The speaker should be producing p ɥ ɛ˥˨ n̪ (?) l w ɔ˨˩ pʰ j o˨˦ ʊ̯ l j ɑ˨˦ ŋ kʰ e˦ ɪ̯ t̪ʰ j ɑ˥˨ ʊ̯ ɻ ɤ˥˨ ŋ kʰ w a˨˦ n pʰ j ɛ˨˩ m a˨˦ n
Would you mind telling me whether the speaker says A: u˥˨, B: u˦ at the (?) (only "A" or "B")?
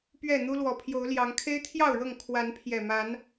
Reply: B